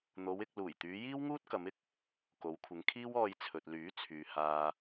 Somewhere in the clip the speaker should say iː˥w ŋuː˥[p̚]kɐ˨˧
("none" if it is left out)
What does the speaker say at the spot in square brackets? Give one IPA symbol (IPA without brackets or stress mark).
t̚